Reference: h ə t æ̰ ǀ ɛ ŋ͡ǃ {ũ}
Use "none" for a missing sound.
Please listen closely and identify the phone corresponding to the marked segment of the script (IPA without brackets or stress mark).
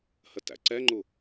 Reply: u